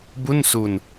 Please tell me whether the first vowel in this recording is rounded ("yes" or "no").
yes